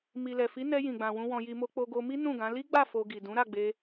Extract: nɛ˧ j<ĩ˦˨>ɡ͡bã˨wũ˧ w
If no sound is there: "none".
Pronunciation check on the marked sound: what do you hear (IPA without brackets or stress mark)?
ĩ˨